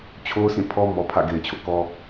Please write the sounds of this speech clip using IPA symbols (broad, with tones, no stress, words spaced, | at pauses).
t͡ɕʰo˦ʊ̯sʰĩ˦˨pʰɔ˦ mɔ˨pʰä̰˦˨ɡe˨ɪ̯t͡ɕʰʊ˦ʔ kɔ˦